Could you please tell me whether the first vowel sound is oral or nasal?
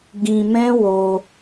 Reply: nasal